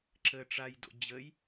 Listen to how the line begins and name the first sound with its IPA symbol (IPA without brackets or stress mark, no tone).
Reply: ǁ